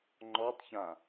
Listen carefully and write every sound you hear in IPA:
ŋ͡ǃɔtˤçã

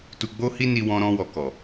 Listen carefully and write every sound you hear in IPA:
tu˧ɡ͡bo˦hi˦ni˧ wɔ̃˧ɾɔ̃˧wɔ˨ kɔ˨

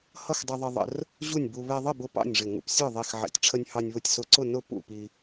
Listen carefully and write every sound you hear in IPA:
hʌ˥˨xdˤɛ˧ðˤʌ˧ ðˤə̰˧r | ʑu˥˨nʲbu˧ βɛ˧ðˤə˥˨bʊ˧ pɑ̰˥˨nʲʐɪ˧˩ ŋṵ˧psʲə˞˥˨ðˤi˧˩x ʕɛ̰˧˩tʲ ʈ͡ʂʰə˧nʲhɑ˧nʲ βʊ˧tʲ sʊ˧˩ǀʊ˥˨ nʊ˥˨ pṵ˥˨pi˧

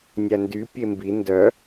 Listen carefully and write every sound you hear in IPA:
nʲændy pʲembi ndœ

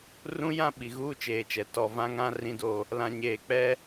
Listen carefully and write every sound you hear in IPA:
rũ˦jã˦ ɓi˨ɣuː˦t͡ʃeː˨t͡ʃɛ˨ tɔ˨ vã˦ŋã˦ rĩ˦do˦ | lã˨ɲeː˨ k͡pɛ˦

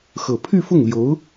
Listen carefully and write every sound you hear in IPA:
xɤ˨˩pʰy˥˧fʊ˥˩ŋljo˧˥ʊ̯

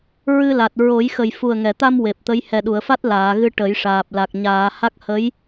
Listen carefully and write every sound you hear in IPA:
ɹɨ˧la˨˩t̚ ɹo˨˩˦jxə˨˩j fu˨˩ə̯ŋɛ˨˩˨t̪a˧m we˨˩p̚t̪ə˧˥j hɛ˨˩ɗu˨˩˨ə̯fa˦˥t̚ laː˨˩˨ɣɨ˧ ʈə˨˩˦jʂaː˨˩p̚ la˨˩k̚ ɲaː˨˩˨ ha˦˥k̚ hə˧˥j

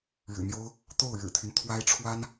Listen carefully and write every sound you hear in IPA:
ɻɻ̩˨˩n̪jo˥ʊ̯ | t̪o˥˩ʊ̯ɻɻ̩˨˩t̪ʰy˦n t̪ʰwa˥ɪ̯ ʈ͡ʂʰwa˥n

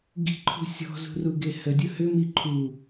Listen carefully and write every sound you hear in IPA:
ɡi̤ǃʰṳ sʲɔ̤zṳruɡe hədʲʊ hʏmi ǃʰu

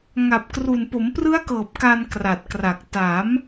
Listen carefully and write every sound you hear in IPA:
ŋa˨˩p̚kru˨˩n po˩˦mprɯ˦˥a̯kɤː˨˩p̚ ka˧nkra˨˩t̚kra˨˩k̚ ta˩˦m

